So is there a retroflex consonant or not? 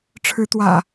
yes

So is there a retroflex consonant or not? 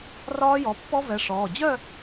yes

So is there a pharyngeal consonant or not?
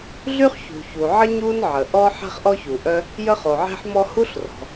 yes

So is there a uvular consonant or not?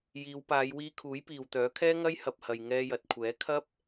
no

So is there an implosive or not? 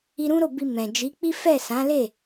no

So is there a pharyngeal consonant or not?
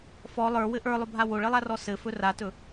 no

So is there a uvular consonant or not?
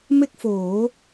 no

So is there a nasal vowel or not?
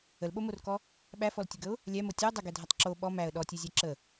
no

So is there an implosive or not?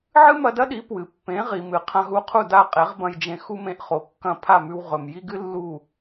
yes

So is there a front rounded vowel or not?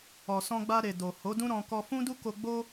no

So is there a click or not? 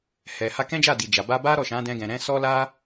no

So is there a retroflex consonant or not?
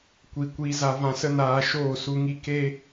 no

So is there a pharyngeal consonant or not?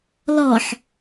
yes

